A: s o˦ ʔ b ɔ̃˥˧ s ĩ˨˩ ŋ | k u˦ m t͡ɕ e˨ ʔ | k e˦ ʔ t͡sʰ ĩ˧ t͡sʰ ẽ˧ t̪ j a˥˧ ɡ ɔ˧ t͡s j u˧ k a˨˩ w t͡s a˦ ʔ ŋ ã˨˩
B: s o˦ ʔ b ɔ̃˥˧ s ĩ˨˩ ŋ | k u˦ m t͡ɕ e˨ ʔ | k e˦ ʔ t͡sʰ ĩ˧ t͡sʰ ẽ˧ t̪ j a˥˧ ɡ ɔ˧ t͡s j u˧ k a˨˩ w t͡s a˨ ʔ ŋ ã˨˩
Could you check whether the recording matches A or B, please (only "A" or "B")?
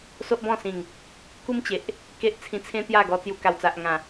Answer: B